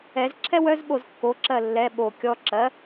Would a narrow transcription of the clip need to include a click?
yes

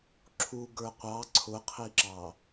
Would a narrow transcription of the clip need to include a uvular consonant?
yes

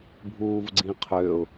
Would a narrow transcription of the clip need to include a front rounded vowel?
yes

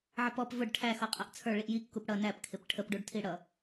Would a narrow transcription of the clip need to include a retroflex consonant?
yes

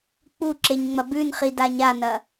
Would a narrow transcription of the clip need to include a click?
yes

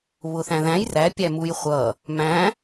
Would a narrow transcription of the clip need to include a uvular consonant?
yes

